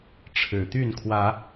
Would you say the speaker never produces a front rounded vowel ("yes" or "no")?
no